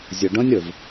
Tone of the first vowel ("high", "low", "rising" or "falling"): low